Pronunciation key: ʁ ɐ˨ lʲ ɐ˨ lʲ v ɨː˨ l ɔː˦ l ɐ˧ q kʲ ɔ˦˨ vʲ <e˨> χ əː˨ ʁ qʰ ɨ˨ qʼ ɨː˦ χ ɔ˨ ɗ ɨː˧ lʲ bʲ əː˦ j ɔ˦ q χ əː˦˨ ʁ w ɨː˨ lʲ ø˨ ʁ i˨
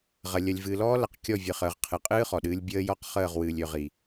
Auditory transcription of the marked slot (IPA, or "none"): ɨ˨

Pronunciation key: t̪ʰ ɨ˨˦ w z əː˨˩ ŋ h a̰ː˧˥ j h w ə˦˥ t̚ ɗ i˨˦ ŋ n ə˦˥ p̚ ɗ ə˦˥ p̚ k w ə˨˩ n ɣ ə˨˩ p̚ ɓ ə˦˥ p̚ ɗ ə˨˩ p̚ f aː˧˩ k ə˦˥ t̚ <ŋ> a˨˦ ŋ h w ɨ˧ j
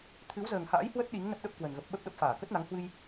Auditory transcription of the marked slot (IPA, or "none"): n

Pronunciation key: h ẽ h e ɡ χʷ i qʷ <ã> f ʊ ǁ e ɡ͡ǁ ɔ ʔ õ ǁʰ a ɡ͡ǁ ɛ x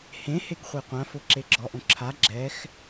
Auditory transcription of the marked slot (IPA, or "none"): ã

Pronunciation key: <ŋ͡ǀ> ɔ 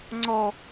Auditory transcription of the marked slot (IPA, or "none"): ŋ͡ǀ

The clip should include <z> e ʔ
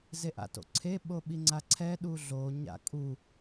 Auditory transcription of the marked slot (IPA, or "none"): z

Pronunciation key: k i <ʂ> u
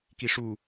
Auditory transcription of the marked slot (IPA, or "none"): ʂ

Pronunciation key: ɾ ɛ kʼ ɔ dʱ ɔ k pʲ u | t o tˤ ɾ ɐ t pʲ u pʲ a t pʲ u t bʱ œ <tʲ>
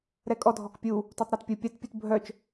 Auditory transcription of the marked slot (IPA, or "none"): t͡ʃ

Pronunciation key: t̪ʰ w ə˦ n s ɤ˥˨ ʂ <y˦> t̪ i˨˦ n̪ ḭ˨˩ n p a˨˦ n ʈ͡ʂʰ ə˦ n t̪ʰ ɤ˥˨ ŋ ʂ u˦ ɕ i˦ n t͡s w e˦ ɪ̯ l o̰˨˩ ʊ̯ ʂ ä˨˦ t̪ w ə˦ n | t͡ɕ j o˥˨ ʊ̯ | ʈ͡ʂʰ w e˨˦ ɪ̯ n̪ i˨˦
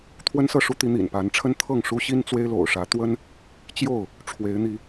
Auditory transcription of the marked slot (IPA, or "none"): u˦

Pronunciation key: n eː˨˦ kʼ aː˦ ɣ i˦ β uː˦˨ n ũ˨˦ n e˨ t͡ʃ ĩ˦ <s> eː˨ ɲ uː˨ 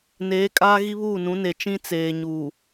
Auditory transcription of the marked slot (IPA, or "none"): t͡s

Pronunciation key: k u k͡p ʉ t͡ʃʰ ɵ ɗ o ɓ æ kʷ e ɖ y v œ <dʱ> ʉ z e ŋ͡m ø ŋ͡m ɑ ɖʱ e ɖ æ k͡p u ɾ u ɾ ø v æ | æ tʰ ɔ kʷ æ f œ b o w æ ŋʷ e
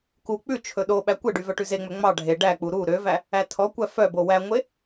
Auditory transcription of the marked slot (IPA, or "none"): ʈ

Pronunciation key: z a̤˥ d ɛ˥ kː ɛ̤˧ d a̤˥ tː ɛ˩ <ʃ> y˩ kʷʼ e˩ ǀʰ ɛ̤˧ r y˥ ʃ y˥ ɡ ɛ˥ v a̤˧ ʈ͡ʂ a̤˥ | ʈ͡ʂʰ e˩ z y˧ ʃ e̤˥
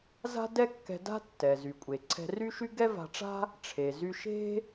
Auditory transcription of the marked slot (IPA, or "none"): z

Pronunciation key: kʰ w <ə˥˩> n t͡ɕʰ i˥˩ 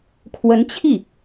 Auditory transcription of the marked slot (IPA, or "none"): ə˧˥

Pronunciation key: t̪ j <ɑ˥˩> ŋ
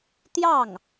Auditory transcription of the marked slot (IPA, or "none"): ɑ˥˩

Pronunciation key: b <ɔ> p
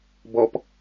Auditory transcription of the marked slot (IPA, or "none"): ɔ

